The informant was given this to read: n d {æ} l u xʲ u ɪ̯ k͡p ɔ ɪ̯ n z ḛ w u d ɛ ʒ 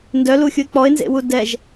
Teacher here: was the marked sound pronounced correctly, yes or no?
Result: no